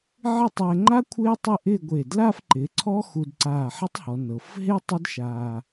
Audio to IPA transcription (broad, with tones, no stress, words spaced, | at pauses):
ʕɪ˥˧tˤɛː˧ŋ͡ǃa˥ kʷʰɪː˥tˤɪ˥˧ʔɪː˥˧ɡʷe˧˩ dla˥˧fǃɪ˩˧ ǀʰɔ˥xu˧dǀaː˧˩ħɪ˥tˤ hɔ˩˧nɤ˩˧f ɦe˥ tˤa˥dʃaː˧